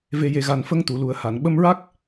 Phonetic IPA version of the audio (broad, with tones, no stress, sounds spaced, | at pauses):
v e˨˩ j e˨˩ ɣ a˨˩ n f ə˧ ŋ t̪ u˨˩˨ l u˨˩ ə̯ h a˨˩˨ n ɓ ə˧ m ɹ a˦˥ k̚